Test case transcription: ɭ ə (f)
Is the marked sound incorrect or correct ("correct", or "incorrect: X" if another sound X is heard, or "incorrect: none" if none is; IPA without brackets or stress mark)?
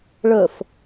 correct